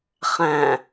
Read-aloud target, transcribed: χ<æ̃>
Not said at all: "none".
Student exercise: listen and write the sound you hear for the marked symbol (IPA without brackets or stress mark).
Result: æ̃